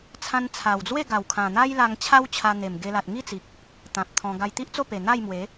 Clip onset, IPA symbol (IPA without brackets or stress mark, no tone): t͡sʰ